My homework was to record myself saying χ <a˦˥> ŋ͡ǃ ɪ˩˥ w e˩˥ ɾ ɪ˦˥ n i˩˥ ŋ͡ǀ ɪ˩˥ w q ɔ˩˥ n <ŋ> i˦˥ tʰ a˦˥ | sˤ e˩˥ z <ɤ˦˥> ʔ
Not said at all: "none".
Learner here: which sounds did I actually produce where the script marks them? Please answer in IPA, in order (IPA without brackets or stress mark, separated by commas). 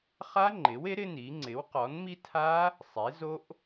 a˦˥, m, o˦˥